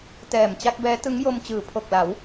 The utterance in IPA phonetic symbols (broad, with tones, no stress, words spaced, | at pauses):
tɛː˨˩mt͡ɕa˥˩k̚bɛː˦˥ tɯ˦˥ŋjo˧m t͡ɕɯː˩˦pʰo˨˩k̚la˩˦w